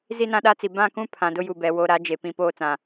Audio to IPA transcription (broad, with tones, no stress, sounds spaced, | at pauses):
z i˦ n ã˦ ɗ a˦ t͡s i˨ b ã˦˨ k ũ˦ pʰ ã˨ d ʊ˦ j u˨ b ɛ˨ w o˨ ɾ a˨˦ d͡ʒ e˨ p ĩ˨ p oː˦ t͡s ã˨